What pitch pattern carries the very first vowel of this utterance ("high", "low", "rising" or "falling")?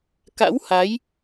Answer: rising